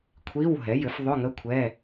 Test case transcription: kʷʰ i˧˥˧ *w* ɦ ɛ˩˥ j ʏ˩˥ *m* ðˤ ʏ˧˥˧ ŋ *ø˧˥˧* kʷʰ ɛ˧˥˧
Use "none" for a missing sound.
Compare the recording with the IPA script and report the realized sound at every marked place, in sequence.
w, f, ə˧˥˧

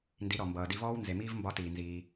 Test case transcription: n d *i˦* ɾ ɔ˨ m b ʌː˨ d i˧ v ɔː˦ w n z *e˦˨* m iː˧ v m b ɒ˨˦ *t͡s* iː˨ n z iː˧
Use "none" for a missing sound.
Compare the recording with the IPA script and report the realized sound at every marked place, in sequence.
i˨˦, e˨, t

